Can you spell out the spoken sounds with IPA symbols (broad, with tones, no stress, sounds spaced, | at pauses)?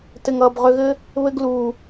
t ɘ˨ ŋ ʌː˨ b ʁ ø˧ ɣ ɘ˦ | β ɘ˧ ɡ l uː˨